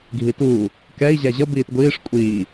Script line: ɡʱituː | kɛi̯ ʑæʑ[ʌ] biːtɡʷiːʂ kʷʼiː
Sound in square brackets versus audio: correct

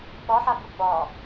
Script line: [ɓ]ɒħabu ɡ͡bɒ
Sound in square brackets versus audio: correct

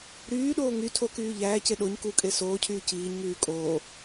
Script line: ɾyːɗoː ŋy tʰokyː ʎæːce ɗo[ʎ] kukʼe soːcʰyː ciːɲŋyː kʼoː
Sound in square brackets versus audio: incorrect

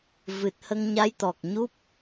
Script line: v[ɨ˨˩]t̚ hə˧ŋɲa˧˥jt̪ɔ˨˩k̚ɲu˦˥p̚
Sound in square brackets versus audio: correct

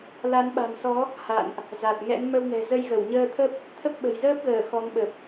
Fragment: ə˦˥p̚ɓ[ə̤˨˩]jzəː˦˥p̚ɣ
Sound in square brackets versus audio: correct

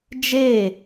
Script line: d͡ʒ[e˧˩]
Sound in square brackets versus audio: incorrect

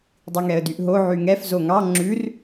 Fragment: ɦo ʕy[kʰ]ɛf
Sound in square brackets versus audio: incorrect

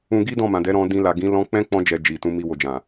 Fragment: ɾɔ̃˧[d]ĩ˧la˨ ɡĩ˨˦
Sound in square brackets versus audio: correct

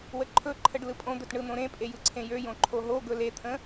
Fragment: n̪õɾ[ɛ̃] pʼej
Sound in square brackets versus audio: incorrect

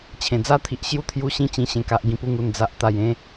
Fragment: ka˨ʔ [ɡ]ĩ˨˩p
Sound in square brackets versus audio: correct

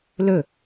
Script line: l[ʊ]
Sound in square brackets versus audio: incorrect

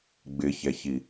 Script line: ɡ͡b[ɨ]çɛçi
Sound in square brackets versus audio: incorrect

